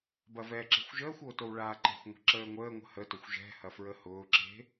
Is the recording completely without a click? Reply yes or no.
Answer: no